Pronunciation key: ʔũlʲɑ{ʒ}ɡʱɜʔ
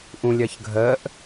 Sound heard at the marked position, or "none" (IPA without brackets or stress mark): ç